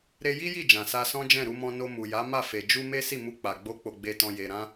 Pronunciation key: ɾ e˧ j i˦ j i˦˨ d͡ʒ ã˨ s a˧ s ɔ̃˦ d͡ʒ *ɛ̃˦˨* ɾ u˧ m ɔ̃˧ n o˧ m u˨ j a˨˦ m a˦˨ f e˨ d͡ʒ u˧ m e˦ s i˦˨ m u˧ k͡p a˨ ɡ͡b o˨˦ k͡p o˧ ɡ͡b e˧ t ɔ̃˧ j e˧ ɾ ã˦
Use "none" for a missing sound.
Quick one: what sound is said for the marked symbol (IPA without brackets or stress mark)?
ɛ̃˦˨